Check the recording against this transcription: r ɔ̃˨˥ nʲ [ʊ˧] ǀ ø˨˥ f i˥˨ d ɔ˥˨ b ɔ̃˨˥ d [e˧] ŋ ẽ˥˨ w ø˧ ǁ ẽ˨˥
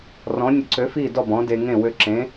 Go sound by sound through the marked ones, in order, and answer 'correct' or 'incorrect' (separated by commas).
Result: correct, correct